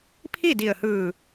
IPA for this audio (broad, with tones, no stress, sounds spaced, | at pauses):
pʰ i˥˨ d i˧˩ ə̯ h ɯː˧˩